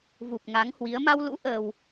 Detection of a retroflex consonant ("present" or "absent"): absent